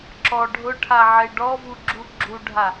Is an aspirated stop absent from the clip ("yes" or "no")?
no